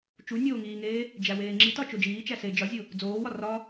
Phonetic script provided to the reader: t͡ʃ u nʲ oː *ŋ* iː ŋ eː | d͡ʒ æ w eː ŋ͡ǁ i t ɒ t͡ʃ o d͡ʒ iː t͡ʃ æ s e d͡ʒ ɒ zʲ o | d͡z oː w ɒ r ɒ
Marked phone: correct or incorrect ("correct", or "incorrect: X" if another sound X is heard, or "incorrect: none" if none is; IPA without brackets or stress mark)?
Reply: correct